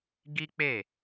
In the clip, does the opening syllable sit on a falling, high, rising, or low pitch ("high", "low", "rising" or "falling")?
high